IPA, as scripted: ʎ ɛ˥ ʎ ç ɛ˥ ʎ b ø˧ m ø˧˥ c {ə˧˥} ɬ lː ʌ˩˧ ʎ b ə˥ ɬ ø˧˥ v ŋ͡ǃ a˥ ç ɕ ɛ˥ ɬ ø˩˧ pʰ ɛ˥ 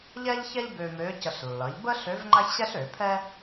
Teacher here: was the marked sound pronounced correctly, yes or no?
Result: no